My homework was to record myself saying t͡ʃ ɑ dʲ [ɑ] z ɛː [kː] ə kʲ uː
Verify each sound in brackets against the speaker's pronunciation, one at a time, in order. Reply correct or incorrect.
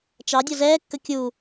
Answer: incorrect, correct

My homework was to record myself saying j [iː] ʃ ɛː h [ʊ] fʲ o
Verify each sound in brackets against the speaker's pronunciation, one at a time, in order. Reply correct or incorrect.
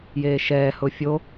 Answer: incorrect, correct

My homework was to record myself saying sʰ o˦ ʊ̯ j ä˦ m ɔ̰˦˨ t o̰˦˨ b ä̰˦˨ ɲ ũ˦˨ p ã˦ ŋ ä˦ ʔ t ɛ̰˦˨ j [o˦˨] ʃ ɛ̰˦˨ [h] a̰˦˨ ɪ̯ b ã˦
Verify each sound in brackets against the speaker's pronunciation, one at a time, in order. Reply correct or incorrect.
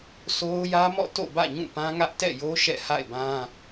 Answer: incorrect, correct

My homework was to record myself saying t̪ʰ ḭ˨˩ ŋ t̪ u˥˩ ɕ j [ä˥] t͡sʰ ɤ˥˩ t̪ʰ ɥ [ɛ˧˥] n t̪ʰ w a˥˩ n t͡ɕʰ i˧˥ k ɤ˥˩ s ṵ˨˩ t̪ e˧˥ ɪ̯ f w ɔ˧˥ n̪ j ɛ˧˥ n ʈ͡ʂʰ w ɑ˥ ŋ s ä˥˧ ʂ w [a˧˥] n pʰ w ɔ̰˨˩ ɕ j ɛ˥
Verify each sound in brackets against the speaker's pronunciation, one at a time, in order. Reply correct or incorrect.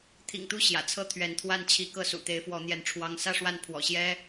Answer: incorrect, correct, incorrect

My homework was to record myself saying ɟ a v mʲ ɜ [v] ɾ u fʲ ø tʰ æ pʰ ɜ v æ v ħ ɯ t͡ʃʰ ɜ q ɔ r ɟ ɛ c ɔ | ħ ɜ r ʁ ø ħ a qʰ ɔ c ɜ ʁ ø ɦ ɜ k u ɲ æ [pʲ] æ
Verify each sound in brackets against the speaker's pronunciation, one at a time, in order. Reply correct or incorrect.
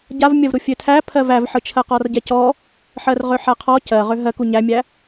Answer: correct, incorrect

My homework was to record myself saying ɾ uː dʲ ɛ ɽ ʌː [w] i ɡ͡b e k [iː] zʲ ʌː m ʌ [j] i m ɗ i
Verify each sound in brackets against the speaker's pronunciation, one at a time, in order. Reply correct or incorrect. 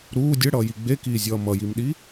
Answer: incorrect, correct, correct

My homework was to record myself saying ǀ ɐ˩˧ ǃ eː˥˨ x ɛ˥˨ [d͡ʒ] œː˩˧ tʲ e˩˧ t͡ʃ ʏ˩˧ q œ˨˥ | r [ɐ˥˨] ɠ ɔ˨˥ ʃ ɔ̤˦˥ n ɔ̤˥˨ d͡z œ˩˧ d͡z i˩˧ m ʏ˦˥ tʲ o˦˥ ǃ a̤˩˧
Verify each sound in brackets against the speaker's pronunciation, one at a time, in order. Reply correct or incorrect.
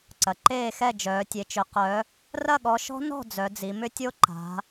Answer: correct, correct

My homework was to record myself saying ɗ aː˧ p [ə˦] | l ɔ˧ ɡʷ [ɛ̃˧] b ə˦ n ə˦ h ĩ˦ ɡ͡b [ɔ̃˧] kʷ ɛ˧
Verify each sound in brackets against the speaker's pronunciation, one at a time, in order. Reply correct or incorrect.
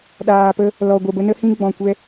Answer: correct, incorrect, incorrect

